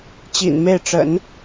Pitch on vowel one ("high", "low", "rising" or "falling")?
low